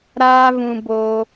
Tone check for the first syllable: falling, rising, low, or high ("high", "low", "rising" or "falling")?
high